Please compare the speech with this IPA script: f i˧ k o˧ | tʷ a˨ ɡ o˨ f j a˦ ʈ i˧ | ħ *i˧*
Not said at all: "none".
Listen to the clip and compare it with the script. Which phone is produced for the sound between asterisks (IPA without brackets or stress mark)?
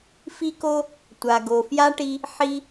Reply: i˧